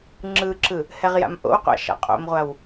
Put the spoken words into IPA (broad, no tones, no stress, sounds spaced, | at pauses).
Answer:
ŋ͡ǁ ɯ ǁ ɯ | h ɛ ʁ j a̰ m ʔ o̰ w qʷ a̰ ʃ a̰ qʼ o̰ m ʁʷ a w